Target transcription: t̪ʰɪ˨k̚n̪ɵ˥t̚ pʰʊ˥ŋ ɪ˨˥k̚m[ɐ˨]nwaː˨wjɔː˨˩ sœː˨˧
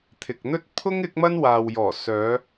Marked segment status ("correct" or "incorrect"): incorrect